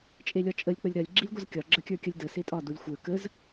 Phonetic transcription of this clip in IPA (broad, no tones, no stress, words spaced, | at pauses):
t͡ʃʼelʲɒt͡ʃʼəlʲ k͡pəlʲɾɐlʲ ɡ͡ǁilʲɡʷɐzkʲɒ ɡ͡ǁəkʲə˞kʲɐlʲdə setʼɒ dulʲxʷə˞ kəz